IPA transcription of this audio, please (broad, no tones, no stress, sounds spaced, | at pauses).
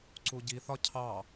ǀ u ɟ i θ ɒ cʰ ɑ